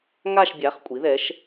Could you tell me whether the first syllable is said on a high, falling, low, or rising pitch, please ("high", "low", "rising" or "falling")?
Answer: falling